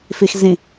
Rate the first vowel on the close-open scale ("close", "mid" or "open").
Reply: close